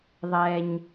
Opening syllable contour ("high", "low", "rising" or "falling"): low